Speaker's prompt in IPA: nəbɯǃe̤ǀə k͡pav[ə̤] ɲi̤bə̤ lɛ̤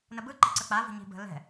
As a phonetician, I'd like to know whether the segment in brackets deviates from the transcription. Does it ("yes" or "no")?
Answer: no